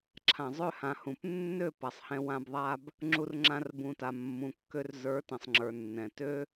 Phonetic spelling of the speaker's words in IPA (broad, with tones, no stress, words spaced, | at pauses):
ǁʰã˨zˤø˦˨hã˨ hũ˨p nːø˦˨ pa˨sˤhɛ̃˧ wã˧b ðˤa˦b | ŋ͡ǁu˧rŋ͡ǁã˧r bũ˨ta˨ mːũ˨kːø˧r zə˞˨˦tɛ̃˨sˤŋ͡ǁə˞˨ nːɛ̃˨tø˦